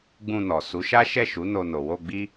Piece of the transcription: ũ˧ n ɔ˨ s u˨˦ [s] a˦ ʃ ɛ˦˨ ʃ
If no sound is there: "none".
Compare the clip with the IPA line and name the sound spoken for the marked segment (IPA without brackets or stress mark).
ʃ